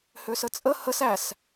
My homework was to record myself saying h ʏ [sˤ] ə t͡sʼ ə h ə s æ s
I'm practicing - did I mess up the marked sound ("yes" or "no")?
yes